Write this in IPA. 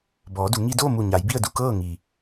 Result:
b ɔː˩˧ d u˩˧ ŋ i˧ d oː˥˨ m u˧˩ ɲ a˩˧ j b i˥˨ ə̯ d u˥˨ k ɤː˥˨ ŋ i˩

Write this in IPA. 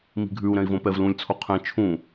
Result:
m i̤ ɡʱ ʉ u̯ ɾ ɛ̃ i̯ v õ p ɛ v l ũ lʲ t͡sʰ o qʰ ɛ̃ t͡ʃʰ ũ

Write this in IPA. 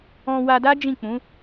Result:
ɔ̃˧ w a˧ d a˦ d͡ʒ ĩ˦˨ k͡p ũ˨˦

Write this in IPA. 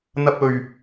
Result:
n̪ ɐ˧ p̚ ɵ˨˩ ɥ

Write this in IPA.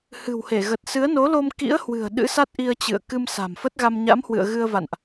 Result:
h ɨ̤˨˩ w h e˧˩ ɣ ə˨˩ t̚ s ɨ˨˦ ə̯ n o˨˦ l o˧ m k ḭ˧˥ ə̯ h w ɨ̤˨˩ ə̯ ɗ ɨ̰˧˥ s a˦˥ t̚ ʔ i˧ ə̯ t͡ɕ ɨ̰˧˨ ə̯ k ɨ˧ m s a̤˨˩ m f ə˦˥ t̚ ɣ a˧ m ɲ a̰˧˥ m h w ɨ̰˧˨ ə̯ ɣ ɨ˧ ə̯ v a̰˧˨ n ʔ

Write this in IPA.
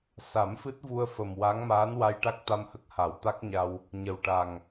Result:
s a˨˩˦ m f ɨ˦˥ t̚ v u˧ ə̯ f ə˨˩ m w a˧˥ ŋ m aː˧˥ n w a˧ j ʈ a˦˥ k̚ t̪ a˧ m h ə˦˥ k̚ h a˨˩˦ w t̪ a˦˥ k̚ ɲ a˧ w | ɲ ə˨˩ w ʈ a˨˩ ŋ

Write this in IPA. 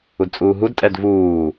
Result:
u d t͡sʼ uː ɦ u d tʼ ɛ d v uː

